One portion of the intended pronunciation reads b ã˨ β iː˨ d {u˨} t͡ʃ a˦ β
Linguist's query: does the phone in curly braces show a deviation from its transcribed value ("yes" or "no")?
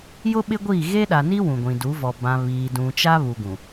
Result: yes